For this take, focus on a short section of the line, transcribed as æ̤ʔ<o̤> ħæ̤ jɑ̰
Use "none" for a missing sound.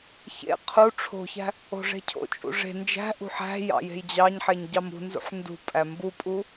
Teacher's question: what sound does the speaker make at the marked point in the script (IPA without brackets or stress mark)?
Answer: ṳ